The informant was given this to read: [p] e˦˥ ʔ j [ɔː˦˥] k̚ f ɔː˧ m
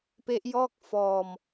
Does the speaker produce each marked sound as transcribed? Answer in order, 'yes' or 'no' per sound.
yes, no

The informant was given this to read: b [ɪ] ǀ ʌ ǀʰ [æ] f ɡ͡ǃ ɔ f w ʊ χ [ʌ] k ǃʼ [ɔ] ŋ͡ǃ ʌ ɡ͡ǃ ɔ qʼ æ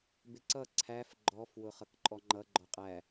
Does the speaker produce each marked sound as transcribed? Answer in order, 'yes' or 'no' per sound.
yes, yes, yes, yes

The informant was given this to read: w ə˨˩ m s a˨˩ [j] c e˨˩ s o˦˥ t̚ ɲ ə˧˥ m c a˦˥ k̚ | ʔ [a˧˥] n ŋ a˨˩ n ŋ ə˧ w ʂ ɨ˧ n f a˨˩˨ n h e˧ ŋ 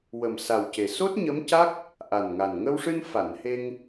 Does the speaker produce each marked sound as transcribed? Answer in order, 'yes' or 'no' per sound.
no, no

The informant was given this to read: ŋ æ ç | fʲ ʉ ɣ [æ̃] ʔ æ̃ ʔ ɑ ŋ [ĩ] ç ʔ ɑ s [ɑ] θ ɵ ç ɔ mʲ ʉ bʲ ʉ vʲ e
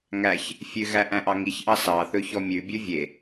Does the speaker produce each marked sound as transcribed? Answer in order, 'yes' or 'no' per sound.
no, no, yes

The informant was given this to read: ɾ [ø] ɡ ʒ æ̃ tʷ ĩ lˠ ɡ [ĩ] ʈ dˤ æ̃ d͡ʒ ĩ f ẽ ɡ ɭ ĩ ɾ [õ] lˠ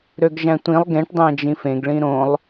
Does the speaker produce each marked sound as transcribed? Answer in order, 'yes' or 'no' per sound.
yes, no, yes

